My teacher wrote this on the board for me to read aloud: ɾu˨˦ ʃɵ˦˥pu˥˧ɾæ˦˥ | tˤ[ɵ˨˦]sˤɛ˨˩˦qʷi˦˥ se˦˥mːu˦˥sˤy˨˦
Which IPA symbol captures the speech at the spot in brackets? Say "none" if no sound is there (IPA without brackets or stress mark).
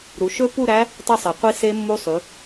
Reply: ɵ˥˧